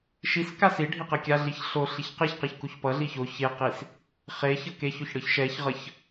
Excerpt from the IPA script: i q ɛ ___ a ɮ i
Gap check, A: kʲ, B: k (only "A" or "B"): A